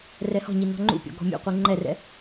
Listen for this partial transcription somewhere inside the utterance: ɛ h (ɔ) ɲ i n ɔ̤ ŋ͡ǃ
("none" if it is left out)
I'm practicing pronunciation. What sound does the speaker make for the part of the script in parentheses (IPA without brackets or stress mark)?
ɔ̤